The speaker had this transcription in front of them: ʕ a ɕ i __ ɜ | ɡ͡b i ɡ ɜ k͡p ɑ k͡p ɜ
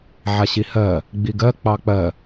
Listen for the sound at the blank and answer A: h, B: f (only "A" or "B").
A